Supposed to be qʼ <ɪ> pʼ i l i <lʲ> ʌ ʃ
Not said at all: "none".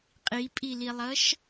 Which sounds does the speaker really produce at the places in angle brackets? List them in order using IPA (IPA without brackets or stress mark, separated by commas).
i, lˠ